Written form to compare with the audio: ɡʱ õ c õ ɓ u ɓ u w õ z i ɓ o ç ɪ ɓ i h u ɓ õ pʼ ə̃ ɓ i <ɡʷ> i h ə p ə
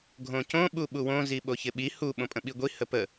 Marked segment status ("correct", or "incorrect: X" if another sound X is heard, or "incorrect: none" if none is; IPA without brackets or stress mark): correct